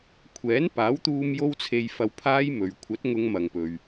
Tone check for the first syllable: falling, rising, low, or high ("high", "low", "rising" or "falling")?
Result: rising